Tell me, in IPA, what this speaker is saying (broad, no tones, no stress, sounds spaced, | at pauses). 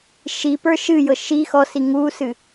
ʃ i p ə˞ ʃ ɨ j ɤ ʃ i x ɔ s i ŋ u s ɨ